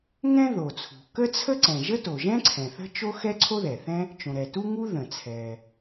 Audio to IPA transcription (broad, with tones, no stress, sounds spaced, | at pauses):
ŋ ɛ̃˥ ð o˩ t͡sʰ ṳ˩ k ə˥ t͡sʰ ə˥ ǀ ɛ̃˩ ʒ ə˥ t o˩ ʒ ɛ̃˥ ǀʰ ɛ̃˩ θ ə̤˥ t͡ʃ o˥ x ɛ˥ ǀʰ o˥ ð ɛ˩ θ ɛ̃˥ | t͡ʃ õ˩ ɾ ɛ˩ t u˥ ŋ u˥ ð ə̃˩ t͡sʰ ɛ˩